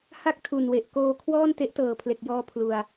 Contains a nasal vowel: no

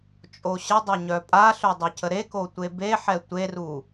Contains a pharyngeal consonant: yes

